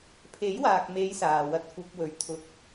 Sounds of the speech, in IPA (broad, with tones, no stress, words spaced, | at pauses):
pʰe˨˥jwaː˨k̚me˨˧j saː˨wɐ˧t̚ kʷɐ˧p̚ wɵ˨ɥ t̪ʰʊ˨k̚